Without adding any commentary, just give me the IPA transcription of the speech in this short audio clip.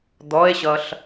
d̪ ɔ e̯ ɕ ʌ ɬ

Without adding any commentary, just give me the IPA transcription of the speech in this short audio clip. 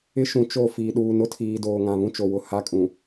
ɪ˦ ʃ ũ˨ t͡ʃ o˦˨ f iː˨ ɗ uː˨ n ʊ˦ tʰ iː˨ d oː˨ ŋ ã˨ β ũ˦ t͡ʃ o˨ w ʊ˨ h a˦ kʼ ũ˨

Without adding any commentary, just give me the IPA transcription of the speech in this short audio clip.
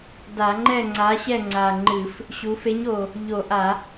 d a˧˩˧ ŋ͡ǃ ɛ˥˨ ŋ͡ǀ a˨˥ ɕ ɛ˥˨ ŋ͡ǀ a˨˩ ŋ͡ǃ ɨ˧˩˧ f | ɕ u˩˧ f e˨˥ ɲ o˨˩ | ʎ o˧˩˧ ʔ a˧˩˧

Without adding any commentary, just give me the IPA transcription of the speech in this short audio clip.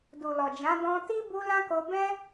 d u˨ l ɔ˨ d͡ʒ ã˨˦ d ɔ̃˧ t i˦ b u˧ l ã˦ k o˧ b ɛ̃˦

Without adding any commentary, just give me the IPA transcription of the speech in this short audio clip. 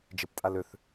d͡ʒ ɪ p tʼ a l ø θ

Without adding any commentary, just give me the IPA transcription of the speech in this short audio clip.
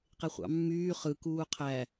q e χʷ ɑ̰ mː yː χ ɯ k uː qʰ æ

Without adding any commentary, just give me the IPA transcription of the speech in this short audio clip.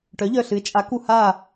ʈ œ˩˥ ʎ œ˧˩ ɬ ɨ˩˥ ɪ̯ t͡ʃʼ a˩˥ k u˧˩ h a˧˩

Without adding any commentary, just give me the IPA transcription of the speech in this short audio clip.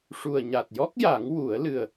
ʂ u˨˩ ə̯ ɲ a˨˩ t̚ j ɔ˦˥ k̚ j a˨˩˦ ŋ w u˨˩˦ ə̯ l ɨ˨˩ ə̯

